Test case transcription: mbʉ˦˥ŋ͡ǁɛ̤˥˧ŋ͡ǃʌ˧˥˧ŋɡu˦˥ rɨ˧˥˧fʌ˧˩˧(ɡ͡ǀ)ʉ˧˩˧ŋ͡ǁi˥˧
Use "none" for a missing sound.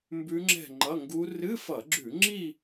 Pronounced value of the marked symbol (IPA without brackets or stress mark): ɡ͡ǁ